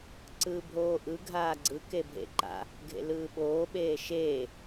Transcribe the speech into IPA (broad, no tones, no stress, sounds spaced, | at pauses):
ǀ ɯː bʱ oː ʔ ɯ ɡʱ aː ɡ͡ǀ ɯ k e bʱ ḛ ǃ a̰ | ɡʱ ḛ l ɯː ɓ oː ɓ eː ʃ eː